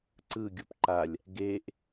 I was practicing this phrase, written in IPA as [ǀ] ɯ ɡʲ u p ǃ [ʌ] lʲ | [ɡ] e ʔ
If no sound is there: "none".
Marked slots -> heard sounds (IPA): ǀ, a, ɡ

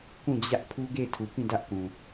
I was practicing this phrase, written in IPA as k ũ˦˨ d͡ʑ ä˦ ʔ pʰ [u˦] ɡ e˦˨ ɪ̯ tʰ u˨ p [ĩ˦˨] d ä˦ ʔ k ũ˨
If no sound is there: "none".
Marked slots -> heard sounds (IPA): u˦, ĩ˦˨

